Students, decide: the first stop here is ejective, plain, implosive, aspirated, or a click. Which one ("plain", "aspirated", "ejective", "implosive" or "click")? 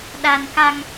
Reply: implosive